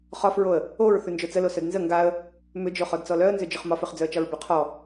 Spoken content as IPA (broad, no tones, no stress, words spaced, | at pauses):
χɒfɹoə̯ | oɹ θʉnd͡ʒot͡səlo sœdnzə ŋɡaə̯ | mʏd͡ʒo χɔdt͡sɔlœə̯ nzʏd͡ʒʏχmɒfʏχ d͡zœə̯t͡ʃɒɹbʏ qʰɔ